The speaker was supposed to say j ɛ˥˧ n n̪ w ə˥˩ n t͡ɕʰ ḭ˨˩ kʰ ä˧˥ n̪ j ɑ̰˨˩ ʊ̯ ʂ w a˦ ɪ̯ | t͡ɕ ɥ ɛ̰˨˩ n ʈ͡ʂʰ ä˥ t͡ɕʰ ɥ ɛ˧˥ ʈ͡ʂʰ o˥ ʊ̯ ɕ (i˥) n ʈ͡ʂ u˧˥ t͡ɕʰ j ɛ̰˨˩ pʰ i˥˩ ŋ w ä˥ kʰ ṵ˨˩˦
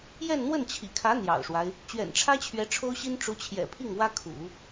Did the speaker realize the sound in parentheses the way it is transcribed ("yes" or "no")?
yes